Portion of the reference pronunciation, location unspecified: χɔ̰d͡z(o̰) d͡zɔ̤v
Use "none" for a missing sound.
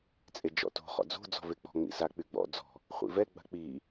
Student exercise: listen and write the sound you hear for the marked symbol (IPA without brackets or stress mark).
o̤